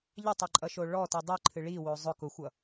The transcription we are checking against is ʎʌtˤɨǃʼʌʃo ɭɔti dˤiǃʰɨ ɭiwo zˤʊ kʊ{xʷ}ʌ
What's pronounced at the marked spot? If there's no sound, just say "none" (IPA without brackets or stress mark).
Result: xʷ